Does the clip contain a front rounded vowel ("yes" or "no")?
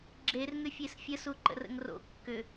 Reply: yes